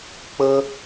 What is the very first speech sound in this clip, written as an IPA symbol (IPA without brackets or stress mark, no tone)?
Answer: k͡p